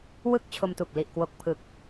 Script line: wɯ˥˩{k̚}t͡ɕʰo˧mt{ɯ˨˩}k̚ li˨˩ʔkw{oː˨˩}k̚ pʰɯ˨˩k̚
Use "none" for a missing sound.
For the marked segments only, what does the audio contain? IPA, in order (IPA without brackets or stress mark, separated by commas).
k̚, u˨˩, o˨˩